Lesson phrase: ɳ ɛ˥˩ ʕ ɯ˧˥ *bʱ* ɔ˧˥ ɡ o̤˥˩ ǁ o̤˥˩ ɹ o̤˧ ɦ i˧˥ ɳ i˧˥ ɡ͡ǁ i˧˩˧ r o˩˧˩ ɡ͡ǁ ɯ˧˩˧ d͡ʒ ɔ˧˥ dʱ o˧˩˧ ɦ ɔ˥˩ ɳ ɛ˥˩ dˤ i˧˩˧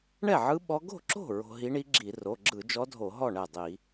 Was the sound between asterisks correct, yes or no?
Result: no